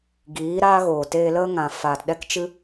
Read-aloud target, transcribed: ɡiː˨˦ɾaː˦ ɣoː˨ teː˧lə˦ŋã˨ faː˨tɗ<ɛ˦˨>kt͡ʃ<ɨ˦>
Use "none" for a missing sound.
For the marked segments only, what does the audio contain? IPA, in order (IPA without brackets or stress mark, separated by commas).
ɛ˦, ɨ˦